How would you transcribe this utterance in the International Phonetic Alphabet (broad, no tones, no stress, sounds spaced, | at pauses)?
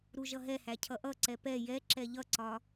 ɾ u ʒ ʌ ɦ ɛ h æ cʰ ʌ ʔ ʌ ǀ ɛ p ɛ j ɛ ǁ ɛ ʎ ʌ ǀ ɒ